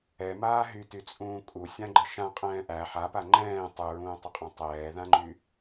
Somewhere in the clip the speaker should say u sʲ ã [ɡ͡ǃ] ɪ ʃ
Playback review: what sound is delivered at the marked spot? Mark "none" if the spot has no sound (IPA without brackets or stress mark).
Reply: ɡ͡ǃ